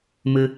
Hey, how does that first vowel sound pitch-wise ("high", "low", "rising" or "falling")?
high